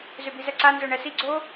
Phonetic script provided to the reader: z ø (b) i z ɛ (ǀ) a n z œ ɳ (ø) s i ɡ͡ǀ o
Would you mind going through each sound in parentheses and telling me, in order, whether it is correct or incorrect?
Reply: correct, correct, incorrect

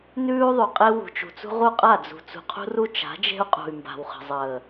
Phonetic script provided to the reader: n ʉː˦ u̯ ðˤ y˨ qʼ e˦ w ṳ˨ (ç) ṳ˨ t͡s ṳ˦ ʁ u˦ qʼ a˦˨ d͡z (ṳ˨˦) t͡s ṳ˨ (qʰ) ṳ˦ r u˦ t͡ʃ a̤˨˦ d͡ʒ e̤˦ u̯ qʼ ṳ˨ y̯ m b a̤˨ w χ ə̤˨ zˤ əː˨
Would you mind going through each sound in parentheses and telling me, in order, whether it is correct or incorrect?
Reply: incorrect, incorrect, correct

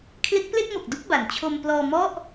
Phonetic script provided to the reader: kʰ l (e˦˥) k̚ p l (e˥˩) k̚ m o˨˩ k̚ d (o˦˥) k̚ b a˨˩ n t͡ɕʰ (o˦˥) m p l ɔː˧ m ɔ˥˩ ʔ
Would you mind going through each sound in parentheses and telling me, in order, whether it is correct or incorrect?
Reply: correct, correct, incorrect, incorrect

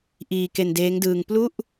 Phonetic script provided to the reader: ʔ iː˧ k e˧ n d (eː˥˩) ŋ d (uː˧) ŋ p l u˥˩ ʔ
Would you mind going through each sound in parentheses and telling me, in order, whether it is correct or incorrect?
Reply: incorrect, incorrect

